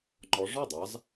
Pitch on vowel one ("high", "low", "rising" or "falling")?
rising